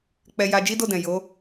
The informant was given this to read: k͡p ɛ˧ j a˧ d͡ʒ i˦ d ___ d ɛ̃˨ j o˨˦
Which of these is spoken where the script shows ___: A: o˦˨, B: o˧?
A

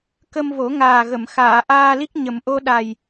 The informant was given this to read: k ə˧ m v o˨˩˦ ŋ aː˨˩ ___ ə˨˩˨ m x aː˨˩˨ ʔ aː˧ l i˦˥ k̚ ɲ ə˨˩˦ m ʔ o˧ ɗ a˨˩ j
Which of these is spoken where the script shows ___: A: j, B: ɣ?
B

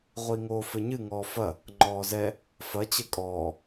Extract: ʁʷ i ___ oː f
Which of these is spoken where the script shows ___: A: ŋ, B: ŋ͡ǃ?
A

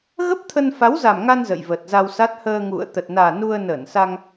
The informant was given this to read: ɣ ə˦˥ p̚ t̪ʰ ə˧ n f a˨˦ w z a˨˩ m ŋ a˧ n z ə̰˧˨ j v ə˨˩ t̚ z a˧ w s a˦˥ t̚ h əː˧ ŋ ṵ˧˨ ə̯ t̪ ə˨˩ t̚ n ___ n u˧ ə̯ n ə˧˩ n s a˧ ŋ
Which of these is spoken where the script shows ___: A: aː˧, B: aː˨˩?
B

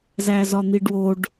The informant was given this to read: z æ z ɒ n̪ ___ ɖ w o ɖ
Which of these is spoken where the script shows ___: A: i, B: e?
A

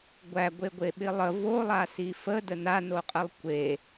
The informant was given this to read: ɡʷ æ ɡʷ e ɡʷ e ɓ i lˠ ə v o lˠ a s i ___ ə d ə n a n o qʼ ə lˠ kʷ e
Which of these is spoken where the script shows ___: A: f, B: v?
A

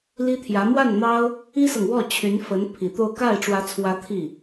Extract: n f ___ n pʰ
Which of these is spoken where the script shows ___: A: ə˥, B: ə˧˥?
B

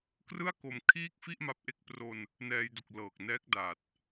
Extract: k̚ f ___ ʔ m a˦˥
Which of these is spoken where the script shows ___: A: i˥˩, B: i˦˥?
A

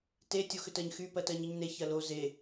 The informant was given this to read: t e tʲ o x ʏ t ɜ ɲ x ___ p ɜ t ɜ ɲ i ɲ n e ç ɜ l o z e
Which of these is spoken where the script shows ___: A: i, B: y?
B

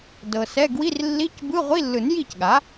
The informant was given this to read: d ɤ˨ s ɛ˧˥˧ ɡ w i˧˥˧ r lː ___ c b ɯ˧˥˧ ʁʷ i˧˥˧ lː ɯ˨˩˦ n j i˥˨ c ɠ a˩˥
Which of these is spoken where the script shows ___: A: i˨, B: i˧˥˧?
B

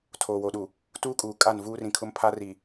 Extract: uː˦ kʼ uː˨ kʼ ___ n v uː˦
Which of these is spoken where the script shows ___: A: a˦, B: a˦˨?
B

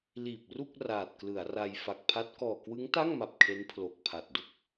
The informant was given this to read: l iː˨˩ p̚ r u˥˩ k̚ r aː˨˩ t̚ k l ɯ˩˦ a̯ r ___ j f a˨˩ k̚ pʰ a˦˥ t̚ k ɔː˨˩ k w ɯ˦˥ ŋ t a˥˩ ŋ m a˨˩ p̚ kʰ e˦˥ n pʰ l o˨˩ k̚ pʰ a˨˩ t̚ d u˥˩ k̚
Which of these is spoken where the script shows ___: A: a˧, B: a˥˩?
A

